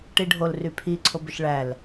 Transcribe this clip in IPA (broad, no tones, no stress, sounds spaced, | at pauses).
ʈ i ɖʱ o l r y pʰ i ǀʰ o b ʏ ʃ ɭ æ l